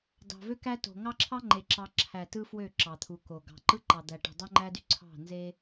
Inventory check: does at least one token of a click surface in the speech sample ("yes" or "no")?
yes